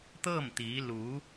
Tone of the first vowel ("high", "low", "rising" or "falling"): falling